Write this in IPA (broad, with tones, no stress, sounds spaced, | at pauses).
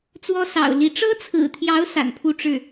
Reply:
t͡s w ɔ˥ s ɑ̰˨˩ ʊ̯ l i˧˥ ʈ͡ʂ ɤ˥ t͡sʰ ɹ̩˨˩ t̪ʰ j ɑ˧˥ ʊ̯ s a̰˨˩ n pʰ u˥˧ ʈ͡ʂ ɻ̩˥˩